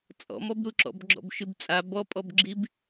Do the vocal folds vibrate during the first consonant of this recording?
no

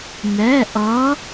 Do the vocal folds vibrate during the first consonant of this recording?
yes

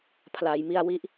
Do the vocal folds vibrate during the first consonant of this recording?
no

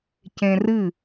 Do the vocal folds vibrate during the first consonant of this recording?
no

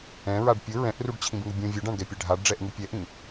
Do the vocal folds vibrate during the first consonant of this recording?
yes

